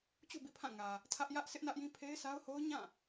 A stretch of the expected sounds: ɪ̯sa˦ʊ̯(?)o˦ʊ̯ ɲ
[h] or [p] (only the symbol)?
h